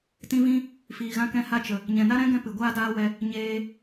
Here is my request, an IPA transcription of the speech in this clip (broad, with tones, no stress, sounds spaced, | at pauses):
t ĩ˧ v ĩ˧ | f iː˨ ɣ ã˧ k ɛ̃˧ h a˧ t͡ʃ ə˨ | ɲ ɛ̃˨ n a˦ ɾ ɛ̃˦ ɡ ɛ̃˧ p ɨ˨ ɡʷ aː˦ d aː˦ w ɛ˧ | ɲ eː˧